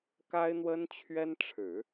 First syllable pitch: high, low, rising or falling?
high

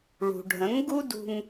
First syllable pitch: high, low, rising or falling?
low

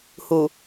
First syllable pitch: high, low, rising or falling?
low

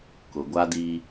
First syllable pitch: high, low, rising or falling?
low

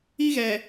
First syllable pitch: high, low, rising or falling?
high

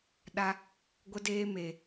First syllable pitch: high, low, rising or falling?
high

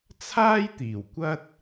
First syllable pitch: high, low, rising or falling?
high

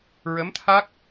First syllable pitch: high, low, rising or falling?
rising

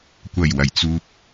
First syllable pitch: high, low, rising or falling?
low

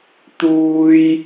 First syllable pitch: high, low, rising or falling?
high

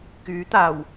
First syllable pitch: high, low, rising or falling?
rising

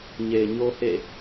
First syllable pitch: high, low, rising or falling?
low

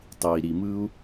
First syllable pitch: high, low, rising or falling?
low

